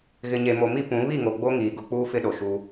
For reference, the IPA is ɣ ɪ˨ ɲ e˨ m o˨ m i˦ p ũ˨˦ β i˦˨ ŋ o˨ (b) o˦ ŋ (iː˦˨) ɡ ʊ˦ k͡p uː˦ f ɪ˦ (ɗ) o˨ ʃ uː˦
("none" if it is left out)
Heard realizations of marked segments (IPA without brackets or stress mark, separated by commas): ɡ͡b, iː˨, ɗ